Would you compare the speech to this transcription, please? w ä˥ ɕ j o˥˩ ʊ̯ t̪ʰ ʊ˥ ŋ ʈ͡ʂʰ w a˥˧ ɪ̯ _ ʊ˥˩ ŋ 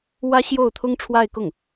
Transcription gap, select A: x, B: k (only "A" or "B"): B